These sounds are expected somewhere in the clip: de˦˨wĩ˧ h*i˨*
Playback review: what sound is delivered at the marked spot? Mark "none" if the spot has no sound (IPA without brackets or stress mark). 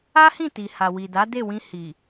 i˨